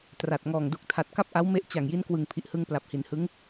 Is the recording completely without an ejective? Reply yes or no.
yes